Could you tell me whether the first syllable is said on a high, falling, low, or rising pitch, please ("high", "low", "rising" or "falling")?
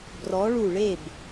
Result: rising